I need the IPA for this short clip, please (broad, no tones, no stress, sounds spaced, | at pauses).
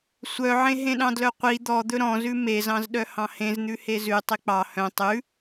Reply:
sʷ œ ʕ ẽ ɦ ẽ ɗ ɑ̃ d l œ qʷ i d̪ ɔ d̪ ɵ ɾ ɔ̃ z ʉ m e z ɑ̃ z ɗ œ h ɑ̃ h ẽ z n̪ ʉ h e z ʉ tˤ i k͡p ɑ h œ̃ tˤ ʉ